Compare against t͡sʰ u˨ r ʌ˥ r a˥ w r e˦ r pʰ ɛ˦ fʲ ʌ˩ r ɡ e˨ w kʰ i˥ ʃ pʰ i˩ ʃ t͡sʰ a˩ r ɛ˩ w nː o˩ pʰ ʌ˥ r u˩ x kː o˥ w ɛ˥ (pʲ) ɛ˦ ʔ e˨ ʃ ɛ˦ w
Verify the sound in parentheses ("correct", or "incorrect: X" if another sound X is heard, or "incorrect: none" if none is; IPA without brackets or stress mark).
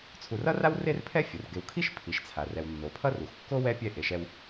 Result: correct